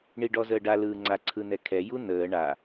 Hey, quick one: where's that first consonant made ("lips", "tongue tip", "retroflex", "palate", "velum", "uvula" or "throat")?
retroflex